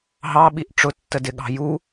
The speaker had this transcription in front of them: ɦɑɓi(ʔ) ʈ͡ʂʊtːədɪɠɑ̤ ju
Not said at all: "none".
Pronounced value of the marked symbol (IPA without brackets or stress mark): ʔ